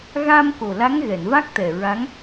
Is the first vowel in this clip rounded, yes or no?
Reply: no